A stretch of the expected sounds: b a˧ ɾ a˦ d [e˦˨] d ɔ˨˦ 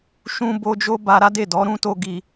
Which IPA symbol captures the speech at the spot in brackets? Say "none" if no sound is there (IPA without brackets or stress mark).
e˦˨